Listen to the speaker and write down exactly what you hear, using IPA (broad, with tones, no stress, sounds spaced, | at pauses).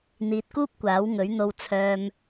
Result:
n̪ iː˨ t̚ k uː˥ p̚ kʷ aː˨˥ w ŋ ɵ˨˥ ɥ n̪ o˧ w t͡sʰ œː˧ m